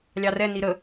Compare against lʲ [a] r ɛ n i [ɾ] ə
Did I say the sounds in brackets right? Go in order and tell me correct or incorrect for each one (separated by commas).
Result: incorrect, correct